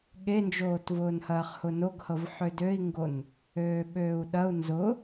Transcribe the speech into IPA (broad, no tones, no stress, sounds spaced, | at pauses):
ɠ e n d͡ʒ oː t v ʊː n h ɐː χ h ʊ n o ɡ h ɤ v ħ ø d ø i̯ ŋ ɡ o n | øː ɓ øː u̯ ɗ ɐ u̯ n z ʊ